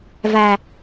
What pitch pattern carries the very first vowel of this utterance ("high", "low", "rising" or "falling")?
low